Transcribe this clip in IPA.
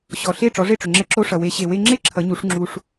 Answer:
ɕ ɔ˩ ɬ e˥˩ ʈ͡ʂ ɔ˩˥ ʐ e˥˩ ʈ͡ʂ ʏ˩ ŋ͡ǁ ɛ˧ ǁ o˧ ʂ ʌ˩ w e˩˥ ɕ e˩ w e˧ ŋ͡ǁ e˥ ǁʰ ʌ˩˥ ɲ u˩˥ ʂ ŋ͡ǁ u˩ ʂ

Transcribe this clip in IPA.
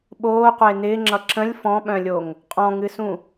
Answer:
ɓ oː qʷ ɪː n ɪː ŋ͡ǁ ʌ ǁ ə̃ lʲ f ɔ̃ ɓ œ̃ lʲ o ŋ | qʼ ɔ̃ ŋ ɨ s ũ

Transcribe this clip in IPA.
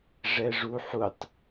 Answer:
ʐ ɛ ʐ u ħ u tˤ

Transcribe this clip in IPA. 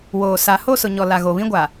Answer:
w oː˨ s a˨ h o˦˨ s ʊ˨ ɲ ɔ˨ l a˨ ɣ o˨ β ĩ˦ ɡʷ a˨

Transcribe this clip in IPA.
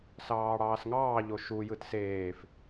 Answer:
s ɑː ɽ ɑː s ŋ ɑː ʎ o ʃ u j ɯ t s eː f

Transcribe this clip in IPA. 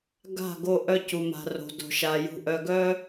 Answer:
ɡ a̤˦˨ ɡ o˧ ʔ œ˧ c u˨ m a̤˨ r o̤˨ d o̤˨ ʃ a˨ j ṳ˨ ʔ œ˨ ɡ œ˧

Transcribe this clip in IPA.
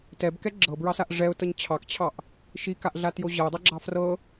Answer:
t ɛ b k ɛ ɡ͡ǁ ɤ b ɹ ɑ s a ʔ ʐ ɛ ʊ̯ t ɤ ɲ t͡ɕʰ ɑ k t͡ɕʰ ɑ ʔ | ʃ i k a ʔ ɮ a t j o ʑ ɤ ʊ̯ dˤ ɛ ɡ͡ǁ ɑ f r ɤ

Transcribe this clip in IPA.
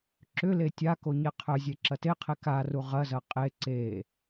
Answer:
ǁ ʏ l e tʲ a k o ɲ e qʰ œ zʲ e ǁ ɐ t e qʰ e k a r u ʁ ɐ z ɐ qʼ e ǀ e

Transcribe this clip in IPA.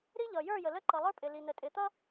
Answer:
ɾ i˦ ʎ ʌ˨ j ə˞˦˨ j ə˨ l ə˦ ǃ ʌ˨ lˠ ə˞˦ pʼ ɪ˨ l i˨ n ə˨ tʼ ɪ˨ t̪ ʌ˦

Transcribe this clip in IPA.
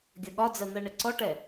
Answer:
ɡʲ ʌ ɠ ɒ d͡z ɜ n̪ ɜ ɳ ɪ ǀ ɔ ʈ ɛ

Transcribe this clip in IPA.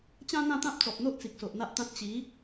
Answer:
t͡ɕ ã˦ n̪ ã˥˧ t̪ ã˦ p̚ t͡s ɔ˨ p̚ n̪ o˦ ʔ t͡s i˨ k̚ s o˨ ʔ n̪ a˦ ʔ t̪ ã˦ t̚ t͡ɕ i˨˦

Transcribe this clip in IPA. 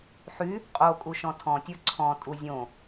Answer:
ħ y | qʼ o kʼ u ʃ ɔ̃ tʰ ɔ̃ tʲ ə˞ ǀʰ ɔ̃ tʼ u zʲ õ

